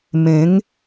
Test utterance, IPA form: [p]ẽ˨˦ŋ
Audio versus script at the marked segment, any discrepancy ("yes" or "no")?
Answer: yes